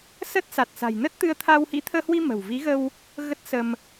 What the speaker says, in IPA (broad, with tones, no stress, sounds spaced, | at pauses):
s ə˦˥ t̚ s a˨˩ t̚ s a̤˨˩ j n ə˦˥ t̚ t̪ ɨ˧ ə̯ t̪ʰ a˧ w h ḭ˧˥ t̪ʰ əː˧ h w i˧ m ə̤˨˩ w v i˨˦ ɣ ə˧ w | ɣ ə˦˥ t̚ s ə˧ m